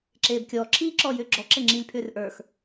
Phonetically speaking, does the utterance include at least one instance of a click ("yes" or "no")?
yes